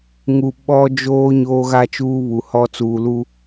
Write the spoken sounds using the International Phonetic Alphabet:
ŋ u˨ ɓ ɔ˦ d͡ʒ oː˦ ɲ oː˦ ɣ a˦ t͡ʃ uː˦ β u˨ h ɔ˦ t͡s uː˨ l u˦

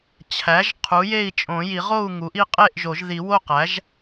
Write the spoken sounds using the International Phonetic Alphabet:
t͡ɕʰ æ˩˥ ʒ qʰ u˩˥ j e˥˨ i̯ t͡ʃʼ õ˨˩˦ j i˨˩˦ ʁ o˥˨ u̯ ŋ u˩˥ ʔ i˥˨ qʼ e˥˨ ʔ ʒ o˨˩˦ ʒ ð i˨˩˦ w o˥˨ q æ˩˥ ʒ

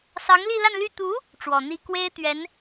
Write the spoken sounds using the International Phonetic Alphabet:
s ɑ˧˥ ŋ l i˥˧ l a˥˧ n l y˥˩ t̪ u˧˥ | ʈ͡ʂ w ɔ˨˩ n̪ i˥ k w e˥ ɪ̯ t̪ ɥ ɛ˧˥ n

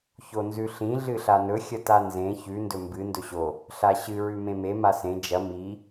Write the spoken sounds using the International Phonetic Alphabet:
ç o n z ʉ ɬ ĩ ɮ ɨ ɬ a n ɵ xʲ ɐ t a n z ẽ ç ʉ n d ɵ m b ɨ n d ɵ ɕ o | ɬ a ɕ ɨ ɹ ʉ m ẽ m e m a s ẽ d͡ʒ ɐ m i

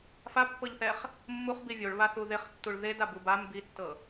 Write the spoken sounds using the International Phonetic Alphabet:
f a pː ɤ ʎ θ ɛ χ | mː u χ b i vʲ o ɭ β a θ u ð e χ tː u ɭ ð e d a b u b a m b i tː ɤ

